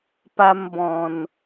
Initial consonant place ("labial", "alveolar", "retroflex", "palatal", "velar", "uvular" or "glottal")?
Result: labial